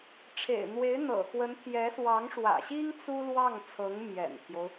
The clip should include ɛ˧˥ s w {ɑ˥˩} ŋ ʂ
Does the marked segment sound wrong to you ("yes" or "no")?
yes